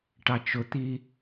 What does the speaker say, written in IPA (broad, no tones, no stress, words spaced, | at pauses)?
ʈɑt͡ʃʊt̪i